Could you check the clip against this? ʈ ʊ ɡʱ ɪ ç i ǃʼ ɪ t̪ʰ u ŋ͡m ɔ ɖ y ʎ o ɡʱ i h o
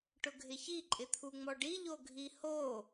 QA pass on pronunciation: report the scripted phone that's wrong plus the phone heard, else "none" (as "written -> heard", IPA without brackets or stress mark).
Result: y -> i